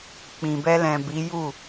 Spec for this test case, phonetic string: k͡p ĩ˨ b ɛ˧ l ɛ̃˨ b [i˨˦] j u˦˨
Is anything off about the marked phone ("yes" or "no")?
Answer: no